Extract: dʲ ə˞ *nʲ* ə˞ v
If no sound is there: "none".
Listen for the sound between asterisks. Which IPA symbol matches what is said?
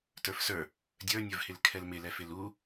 nʲ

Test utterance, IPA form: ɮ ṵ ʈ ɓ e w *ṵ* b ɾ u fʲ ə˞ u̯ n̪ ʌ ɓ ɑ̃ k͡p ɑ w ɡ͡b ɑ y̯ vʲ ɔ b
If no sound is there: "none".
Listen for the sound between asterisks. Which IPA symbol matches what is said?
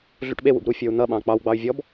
ṵ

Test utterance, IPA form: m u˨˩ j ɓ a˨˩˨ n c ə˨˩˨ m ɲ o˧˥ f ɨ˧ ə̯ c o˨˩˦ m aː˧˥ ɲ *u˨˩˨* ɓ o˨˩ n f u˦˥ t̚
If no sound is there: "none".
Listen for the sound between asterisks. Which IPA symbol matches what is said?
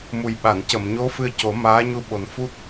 u˧˥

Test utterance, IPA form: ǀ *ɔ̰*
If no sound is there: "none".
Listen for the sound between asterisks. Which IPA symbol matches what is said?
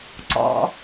ɔ̰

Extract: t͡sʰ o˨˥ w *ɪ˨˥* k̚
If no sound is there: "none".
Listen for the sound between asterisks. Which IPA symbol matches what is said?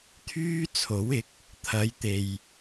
ɪ˨˥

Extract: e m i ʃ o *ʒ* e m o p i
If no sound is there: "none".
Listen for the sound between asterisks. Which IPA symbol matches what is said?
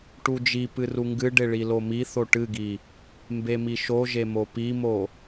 ʒ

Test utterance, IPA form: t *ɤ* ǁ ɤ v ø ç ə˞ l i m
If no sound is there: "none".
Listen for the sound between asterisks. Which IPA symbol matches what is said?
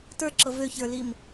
ə˞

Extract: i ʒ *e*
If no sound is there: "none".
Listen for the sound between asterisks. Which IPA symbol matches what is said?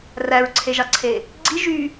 y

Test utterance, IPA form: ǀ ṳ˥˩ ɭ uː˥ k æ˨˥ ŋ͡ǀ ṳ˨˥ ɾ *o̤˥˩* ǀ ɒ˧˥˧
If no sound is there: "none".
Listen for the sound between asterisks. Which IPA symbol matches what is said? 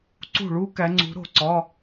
o̤˥˩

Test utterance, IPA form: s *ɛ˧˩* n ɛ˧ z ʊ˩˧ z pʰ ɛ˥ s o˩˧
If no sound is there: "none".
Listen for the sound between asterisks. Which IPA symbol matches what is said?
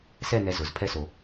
ɛ˥˧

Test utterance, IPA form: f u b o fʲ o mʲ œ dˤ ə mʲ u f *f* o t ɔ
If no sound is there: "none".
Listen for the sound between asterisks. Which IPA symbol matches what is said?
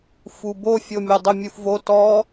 v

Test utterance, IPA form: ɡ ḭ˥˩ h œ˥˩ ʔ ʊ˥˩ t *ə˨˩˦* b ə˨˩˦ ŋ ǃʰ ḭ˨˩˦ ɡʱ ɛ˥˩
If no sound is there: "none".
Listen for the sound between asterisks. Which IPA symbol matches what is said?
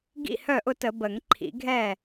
ə˨˩˦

